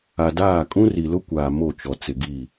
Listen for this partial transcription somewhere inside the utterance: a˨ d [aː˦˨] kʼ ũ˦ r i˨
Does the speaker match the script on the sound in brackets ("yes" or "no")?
yes